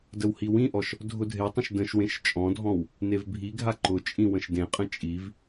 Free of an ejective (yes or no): no